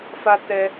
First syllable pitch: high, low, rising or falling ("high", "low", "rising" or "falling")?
high